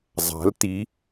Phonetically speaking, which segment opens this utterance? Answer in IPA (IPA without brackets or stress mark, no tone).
zˤ